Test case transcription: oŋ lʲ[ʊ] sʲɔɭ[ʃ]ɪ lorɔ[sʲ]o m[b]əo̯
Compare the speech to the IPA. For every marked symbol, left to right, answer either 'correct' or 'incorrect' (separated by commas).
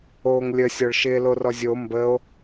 incorrect, correct, incorrect, correct